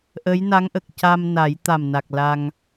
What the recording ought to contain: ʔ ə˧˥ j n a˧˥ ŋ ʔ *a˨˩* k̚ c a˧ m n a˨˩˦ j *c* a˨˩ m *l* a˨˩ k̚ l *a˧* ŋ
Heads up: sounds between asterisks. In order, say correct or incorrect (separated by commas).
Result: incorrect, incorrect, incorrect, correct